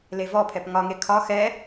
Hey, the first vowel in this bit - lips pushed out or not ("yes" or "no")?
no